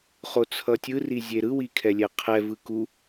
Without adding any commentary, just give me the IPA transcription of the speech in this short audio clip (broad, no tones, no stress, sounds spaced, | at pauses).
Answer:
χ o t͡sʰ ʌ tʲ ɯ r i zʲ e ɾ ɯ w i kʰ ɛ lʲ ɛ qʰ ɛ v ɯ k u